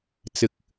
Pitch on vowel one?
low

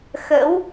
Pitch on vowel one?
rising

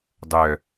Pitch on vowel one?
low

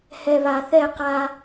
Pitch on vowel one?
low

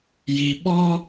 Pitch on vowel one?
low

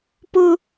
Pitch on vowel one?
high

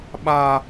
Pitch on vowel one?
low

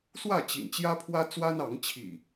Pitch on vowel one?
falling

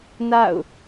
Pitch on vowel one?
falling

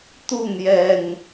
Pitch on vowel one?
falling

